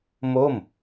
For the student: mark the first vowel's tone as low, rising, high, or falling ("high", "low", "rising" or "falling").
falling